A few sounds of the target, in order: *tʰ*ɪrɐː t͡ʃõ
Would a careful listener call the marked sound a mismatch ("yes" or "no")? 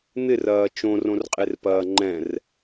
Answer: yes